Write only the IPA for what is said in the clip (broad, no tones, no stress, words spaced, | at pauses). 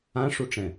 ãʂuʈ͡ʂɛ̃